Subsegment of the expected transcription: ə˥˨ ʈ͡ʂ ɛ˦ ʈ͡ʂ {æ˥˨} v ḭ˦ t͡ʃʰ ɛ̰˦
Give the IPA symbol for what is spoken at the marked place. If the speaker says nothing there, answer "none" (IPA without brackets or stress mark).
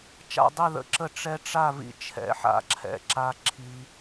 a˥˨